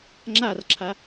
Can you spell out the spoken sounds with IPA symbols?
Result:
ŋ͡ǁarǁʰa

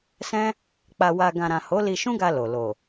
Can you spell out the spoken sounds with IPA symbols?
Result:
sɛ̃˦ | k͡pa˧wa˧ ɡã˨ɾã˨ ho˨˦ li˧ʃũ˦ɡa˧ lo˨ lo˨

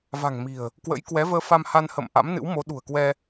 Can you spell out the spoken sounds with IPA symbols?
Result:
va̤˨˩ŋmi̤˨˩ə̯ | kwə̰˧˥j kwɛ˨˦vəː˧fa˧mha˧n hə̰˧˨m ʔa̰˧˥mnɨ̰˧˥wmo˨˦ ɗṳ˨˩ə̯kwɛ˧

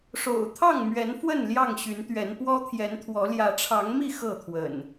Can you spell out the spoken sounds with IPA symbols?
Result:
ʂo̰˨˩ʊ̯ t̪ʰɑ˥˨ŋ mɥɛ˨˦nfwə˥˨n ljɑ˥˨ŋ ɕy˨˦nt̪ɥɛ˨˦n pwɔ˦t̪ʰjɛ˨˦nt̪ʰwɔ˨˦ ljä˨˦ʈ͡ʂʰɑ˨˦ŋmi˥˨ xɤ˥˨t̪ʰwə̰˨˩n

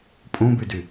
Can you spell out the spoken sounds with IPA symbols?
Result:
pʼũbydy

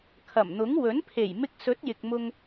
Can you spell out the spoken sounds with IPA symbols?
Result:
kʰɐ˨˩mn̪ʊ˨˥ŋ wɵ˨˥npʰe˨˩j mɪ˧k̚sɵ˨˥t̚jɪ˨k̚mʊ˧ŋ

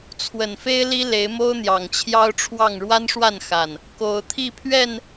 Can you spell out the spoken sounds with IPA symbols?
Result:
t͡sʰwə˨˩nfe˦ɪ̯li˦ le˨˦ɪ̯mo˦ʊ̯ n̪jɑ˨˩ŋt͡ɕʰjɑ˦ʊ̯ʈ͡ʂʰwɑ˥˨ŋ ɻwa˦nʂwa˥˨nxa˨˩n | ko˨˩ʊ̯ t̪ʰi˥˨pʰɥɛ˥˨n

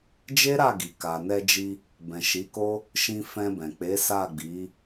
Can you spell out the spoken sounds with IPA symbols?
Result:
d͡ʒe˦ɾa˦˨ɡi˨ ka˨nɛ˧d͡ʒi˧ | bɛ̃˨ʃi˨˦ko˦ | ʃĩ˧fɛ̃˧bɛ̃˨k͡pe˨˦ sa˦˨ɡ͡bi˨˦

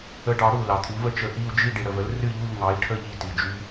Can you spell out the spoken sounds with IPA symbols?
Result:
ə˦˥ɖɑ˨˥ɽu˥˩ lɑ˨t̪ʰu˨˥və˥˩t͡ʃə˥˩ ʔi˥˧u̯d͡ʒi˥˧ ɖi˨ɽə˨və˦˥l rɨ˥˧ʎu˥˧ʎŋɑ˨˥i̯ʈʰə˥˧ ʎi˥˩ti˨ d͡ʒy˦˥

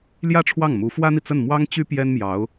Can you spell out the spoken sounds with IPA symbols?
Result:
ljä˥ʈ͡ʂʰwɑ˥˩ŋmu˧˥ fwä˥n̪i˨t͡sə˥˩n mwɑ˥ŋt͡ɕy˥ pjɛ˥nmjɑ˧˥ʊ̯

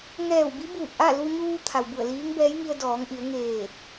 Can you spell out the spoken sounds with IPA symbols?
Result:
ŋɛː˧˩w bi˧˥ buː˧˩p̚ʔa˥˨ lu˧ɲuː˧ t̪ʰa˩wbu˧˩ə̯ liː˧˥ŋbɛː˧˥j ŋi˧ə̯dɔː˩˧ŋʔi˩˧ə̯ ŋeː˧˩t̚

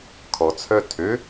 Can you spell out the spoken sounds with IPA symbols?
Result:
kʰɔt͡sʰœ tʰø

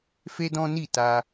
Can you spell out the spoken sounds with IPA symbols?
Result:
fe˦dɔ̃˦ni˦˨ta˧

